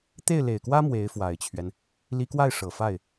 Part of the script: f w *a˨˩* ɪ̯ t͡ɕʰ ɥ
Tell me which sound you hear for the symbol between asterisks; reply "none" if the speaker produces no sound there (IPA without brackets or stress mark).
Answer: a˨˩